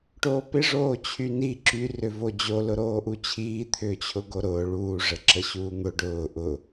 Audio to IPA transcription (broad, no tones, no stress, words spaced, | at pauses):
ʈoːpɪ ʐoːt͡ɕʰyni ǁy rʏvod͡ʑo lʊɾoːʔut͡ɕʰiː t̪ʰʏːt͡ɕʰʊɡoɾʊː ɭuː ʐəǁəɕuːn̪ʊ ɖʊː ʔʊ